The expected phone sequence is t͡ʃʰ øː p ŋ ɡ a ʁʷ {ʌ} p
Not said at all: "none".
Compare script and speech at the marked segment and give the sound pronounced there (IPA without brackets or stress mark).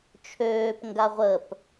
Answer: ə